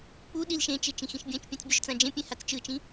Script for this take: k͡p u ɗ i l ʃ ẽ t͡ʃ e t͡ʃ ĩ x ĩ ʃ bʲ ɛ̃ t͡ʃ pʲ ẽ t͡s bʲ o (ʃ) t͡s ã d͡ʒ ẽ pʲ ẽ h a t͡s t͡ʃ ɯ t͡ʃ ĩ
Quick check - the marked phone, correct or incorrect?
correct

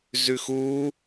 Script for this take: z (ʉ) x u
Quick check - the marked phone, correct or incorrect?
correct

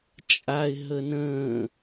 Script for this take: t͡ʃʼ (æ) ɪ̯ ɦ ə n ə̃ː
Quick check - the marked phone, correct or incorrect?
incorrect: a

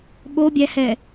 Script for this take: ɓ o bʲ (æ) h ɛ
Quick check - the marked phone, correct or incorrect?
correct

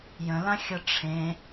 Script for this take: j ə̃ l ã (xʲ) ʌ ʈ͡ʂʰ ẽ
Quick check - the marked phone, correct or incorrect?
correct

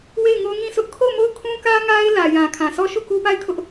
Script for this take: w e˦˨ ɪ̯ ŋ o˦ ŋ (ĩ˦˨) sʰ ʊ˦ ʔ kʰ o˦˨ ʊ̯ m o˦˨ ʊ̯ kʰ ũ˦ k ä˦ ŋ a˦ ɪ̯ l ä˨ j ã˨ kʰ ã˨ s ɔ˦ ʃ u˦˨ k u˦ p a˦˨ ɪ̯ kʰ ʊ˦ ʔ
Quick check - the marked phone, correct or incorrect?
correct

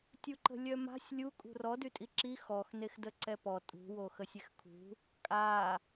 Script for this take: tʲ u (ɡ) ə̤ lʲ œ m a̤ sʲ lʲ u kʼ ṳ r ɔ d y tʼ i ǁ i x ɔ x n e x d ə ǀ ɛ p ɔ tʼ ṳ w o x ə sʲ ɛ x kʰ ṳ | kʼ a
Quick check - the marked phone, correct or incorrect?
incorrect: ǃ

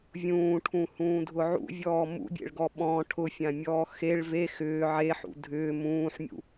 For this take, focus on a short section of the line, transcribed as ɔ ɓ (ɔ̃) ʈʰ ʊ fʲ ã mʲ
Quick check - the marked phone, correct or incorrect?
correct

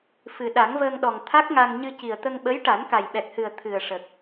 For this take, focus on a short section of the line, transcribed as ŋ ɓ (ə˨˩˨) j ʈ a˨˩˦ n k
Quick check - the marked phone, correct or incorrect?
incorrect: ə˧˥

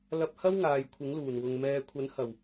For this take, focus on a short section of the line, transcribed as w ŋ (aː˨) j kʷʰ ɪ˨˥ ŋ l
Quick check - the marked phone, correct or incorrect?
correct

